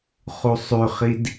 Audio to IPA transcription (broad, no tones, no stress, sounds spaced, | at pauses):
χ u sˤ ʉ χ i d